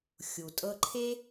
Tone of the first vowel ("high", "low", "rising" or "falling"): low